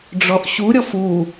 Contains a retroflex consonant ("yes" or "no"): yes